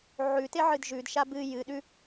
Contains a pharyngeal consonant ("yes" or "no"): yes